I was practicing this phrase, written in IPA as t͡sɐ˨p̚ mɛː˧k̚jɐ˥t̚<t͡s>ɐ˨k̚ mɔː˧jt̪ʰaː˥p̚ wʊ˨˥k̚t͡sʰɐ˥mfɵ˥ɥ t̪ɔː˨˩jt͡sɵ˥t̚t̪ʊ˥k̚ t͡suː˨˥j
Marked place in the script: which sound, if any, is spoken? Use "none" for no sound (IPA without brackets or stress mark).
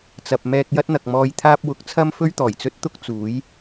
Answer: n̪